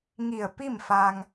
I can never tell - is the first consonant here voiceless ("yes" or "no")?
no